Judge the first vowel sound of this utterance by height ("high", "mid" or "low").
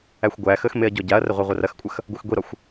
low